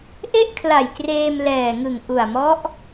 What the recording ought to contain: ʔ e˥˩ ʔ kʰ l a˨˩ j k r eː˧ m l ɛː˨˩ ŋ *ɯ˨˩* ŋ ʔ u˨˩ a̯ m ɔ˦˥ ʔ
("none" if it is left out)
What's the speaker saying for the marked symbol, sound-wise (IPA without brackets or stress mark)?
ɯ˨˩